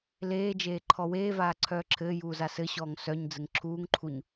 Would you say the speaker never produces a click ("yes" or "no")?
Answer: no